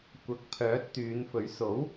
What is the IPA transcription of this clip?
kʷ ɐ˨ k̚ pʰ œː˨˥ t̚ t̪ yː˨˧ n f ɵ˨˥ ɥ s o˨˥ w

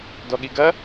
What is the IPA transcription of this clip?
d ɔ ɠ i ɡ ɐ

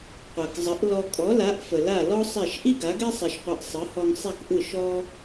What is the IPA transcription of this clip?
qʷ a˩ k zˤ ə˩˥ ʔ l ɔ˧ kʼ ɔ˩˥ l a˩˥ ʔ f ə˩ l a˥˩ l ɔ˥ sˤ ɛ˥˩ ʃ ʔ i˥ ɡ a˩˥ ɡ ɛ˥ sˤ ɛ˧ ʃ qʷ i˧ ʔ sˤ ɯ˩˥ h ɔ˧ ŋ sˤ ɛ˥˩ k ʔ ɯ˥˩ ʃ ɔ˥

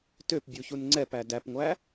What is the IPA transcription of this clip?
t ø p bʲ u ç u n ŋ͡ǀ ɛ p æ d æ p ŋʷ æ

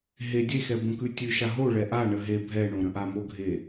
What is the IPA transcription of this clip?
ɦ e dʲ e x ɛ b õ k ʉ tʲ ʉ ʃ a ɦ o ɭ ɛ ʔ a ɳ ə ɦ e bʱ ɛ ɳ õ ɾ ə̃ ʔ a m o ɡʱ e

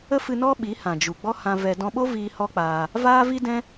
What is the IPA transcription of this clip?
ə˦ f ɨ˧ n ɔ˦ ɓ i˨˦ h ã˨ d͡ʒ u˨ ɡ͡b ɔ˦ h ã˧ v ɛ˧ d ɔ̃˧ ɓ o˦ v iː˧ h ɔ˦ k͡p aː˧ | v aː˦ v i˦ d ɛ̃˦

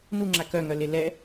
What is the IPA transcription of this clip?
n u ŋ͡ǁ a k œ ŋ œ l e l ɛ

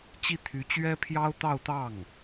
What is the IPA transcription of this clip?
t͡ɕ i˥˩ t̪ʰ y˧˥ t͡ɕ ɥ ɛ˥ pʰ j ɑ˥ ʊ̯ t̪ ɑ˥˧ ʊ̯ t̪ ɑ˥˩ ŋ

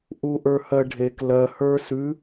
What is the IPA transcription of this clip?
ʔ u ʔ ə˞ h ɜ ɖʱ e k l ɜ h ə˞ s ʉ

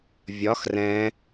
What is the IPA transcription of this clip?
vʲ ɒ x r ɛ̃

